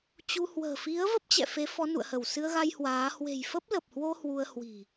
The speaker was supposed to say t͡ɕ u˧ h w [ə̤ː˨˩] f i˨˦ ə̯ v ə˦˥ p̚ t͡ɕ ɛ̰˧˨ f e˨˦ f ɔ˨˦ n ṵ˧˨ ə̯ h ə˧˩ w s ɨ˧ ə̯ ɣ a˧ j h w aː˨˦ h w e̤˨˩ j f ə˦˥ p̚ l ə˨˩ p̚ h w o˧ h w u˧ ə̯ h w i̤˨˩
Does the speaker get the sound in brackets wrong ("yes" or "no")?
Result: no